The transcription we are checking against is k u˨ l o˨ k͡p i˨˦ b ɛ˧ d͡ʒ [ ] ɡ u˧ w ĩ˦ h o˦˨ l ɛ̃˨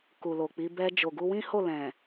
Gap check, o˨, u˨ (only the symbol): o˨